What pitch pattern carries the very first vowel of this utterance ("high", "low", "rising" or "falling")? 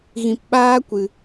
low